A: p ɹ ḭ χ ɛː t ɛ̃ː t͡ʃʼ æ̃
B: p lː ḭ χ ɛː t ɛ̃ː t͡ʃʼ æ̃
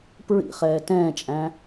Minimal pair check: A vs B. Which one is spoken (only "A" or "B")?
A